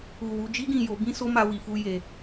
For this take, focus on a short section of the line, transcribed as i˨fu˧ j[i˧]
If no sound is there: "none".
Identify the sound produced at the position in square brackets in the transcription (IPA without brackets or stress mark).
e˧